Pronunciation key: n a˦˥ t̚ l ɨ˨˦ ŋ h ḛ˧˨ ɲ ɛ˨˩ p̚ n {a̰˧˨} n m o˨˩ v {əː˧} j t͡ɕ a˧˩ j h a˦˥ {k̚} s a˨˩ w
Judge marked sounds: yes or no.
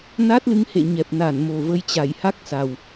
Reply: no, no, yes

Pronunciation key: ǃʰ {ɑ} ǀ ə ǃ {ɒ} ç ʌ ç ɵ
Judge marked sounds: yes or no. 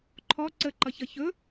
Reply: no, no

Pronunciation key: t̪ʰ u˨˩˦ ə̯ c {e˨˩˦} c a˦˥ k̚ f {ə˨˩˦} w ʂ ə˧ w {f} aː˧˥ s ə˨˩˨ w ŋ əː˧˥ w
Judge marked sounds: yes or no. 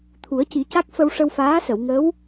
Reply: no, no, yes

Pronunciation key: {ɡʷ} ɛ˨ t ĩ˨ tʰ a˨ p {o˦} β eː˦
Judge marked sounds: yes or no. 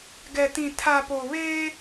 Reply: no, no

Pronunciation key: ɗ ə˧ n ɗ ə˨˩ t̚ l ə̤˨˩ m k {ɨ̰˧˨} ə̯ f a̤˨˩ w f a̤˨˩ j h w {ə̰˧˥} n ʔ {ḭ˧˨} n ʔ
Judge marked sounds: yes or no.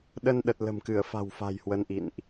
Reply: no, no, yes

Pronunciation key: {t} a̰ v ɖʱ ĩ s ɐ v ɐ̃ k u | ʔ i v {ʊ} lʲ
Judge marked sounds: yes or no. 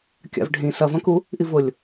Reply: no, yes

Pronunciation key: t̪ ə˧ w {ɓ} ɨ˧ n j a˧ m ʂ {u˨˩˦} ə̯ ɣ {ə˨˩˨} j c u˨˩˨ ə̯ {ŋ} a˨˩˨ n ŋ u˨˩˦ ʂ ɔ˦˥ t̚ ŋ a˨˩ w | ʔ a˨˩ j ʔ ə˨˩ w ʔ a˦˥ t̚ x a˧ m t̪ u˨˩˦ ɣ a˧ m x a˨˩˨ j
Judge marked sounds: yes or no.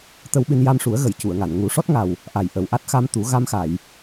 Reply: yes, yes, yes, yes

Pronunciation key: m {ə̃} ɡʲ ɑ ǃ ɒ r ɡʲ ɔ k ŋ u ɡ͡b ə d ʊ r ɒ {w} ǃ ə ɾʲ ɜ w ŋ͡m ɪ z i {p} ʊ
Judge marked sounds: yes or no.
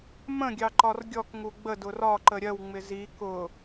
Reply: yes, no, no

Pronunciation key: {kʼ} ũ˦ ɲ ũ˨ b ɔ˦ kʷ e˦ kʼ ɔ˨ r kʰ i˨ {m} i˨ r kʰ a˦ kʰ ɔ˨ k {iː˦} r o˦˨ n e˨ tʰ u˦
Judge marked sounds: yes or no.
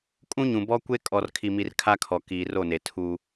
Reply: yes, yes, no

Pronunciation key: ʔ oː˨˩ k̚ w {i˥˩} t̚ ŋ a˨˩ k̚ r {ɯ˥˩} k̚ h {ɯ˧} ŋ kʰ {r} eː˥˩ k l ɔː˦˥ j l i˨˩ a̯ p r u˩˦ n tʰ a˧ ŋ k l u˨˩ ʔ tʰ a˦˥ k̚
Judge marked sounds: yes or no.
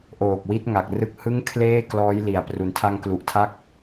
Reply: no, no, no, no

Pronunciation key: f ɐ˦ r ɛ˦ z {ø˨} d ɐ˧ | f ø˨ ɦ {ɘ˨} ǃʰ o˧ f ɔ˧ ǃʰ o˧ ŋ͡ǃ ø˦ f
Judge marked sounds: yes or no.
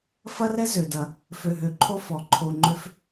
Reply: yes, no

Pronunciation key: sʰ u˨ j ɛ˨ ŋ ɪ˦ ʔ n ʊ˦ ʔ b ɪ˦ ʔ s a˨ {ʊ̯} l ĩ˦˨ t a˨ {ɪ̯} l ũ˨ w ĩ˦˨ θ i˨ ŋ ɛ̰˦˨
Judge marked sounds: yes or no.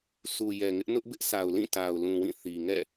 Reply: yes, no

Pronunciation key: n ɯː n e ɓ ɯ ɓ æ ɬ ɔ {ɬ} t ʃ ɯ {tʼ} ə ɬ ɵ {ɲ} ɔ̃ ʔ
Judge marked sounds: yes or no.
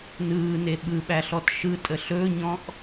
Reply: no, yes, yes

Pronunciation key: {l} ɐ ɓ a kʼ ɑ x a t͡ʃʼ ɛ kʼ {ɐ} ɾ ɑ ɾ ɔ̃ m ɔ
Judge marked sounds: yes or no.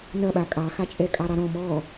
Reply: no, no

